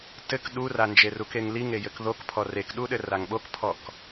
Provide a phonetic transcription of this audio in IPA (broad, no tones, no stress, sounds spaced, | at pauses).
t ɘ k ɗ u r a n d͡ʒ e r u k e ŋ l i ŋ e j ɘ k ð o k pʰ ɔ r e k ɗ u ɗ ɘ r a ŋ ɓ o k pʰ ɔ k